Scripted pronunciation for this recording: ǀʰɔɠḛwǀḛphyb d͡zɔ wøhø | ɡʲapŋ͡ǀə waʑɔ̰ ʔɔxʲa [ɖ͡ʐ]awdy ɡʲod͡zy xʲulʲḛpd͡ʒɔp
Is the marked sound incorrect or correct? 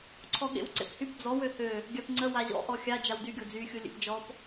incorrect